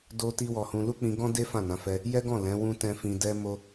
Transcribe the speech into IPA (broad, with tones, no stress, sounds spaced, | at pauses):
d o˦ t i˦ w ɔ˧ h ũ˧ l u˦ k͡p ĩ˧ ɡ ɔ̃˦ d e˦ f ã˦˨ n ã˨˦ f ɛ˧ | j ɛ˦ ɡ ɔ̃˦˨ l ɛ̃˨˦ w ũ˦ t ɛ̃˦ f ĩ˧ d ɛ˦ m o˦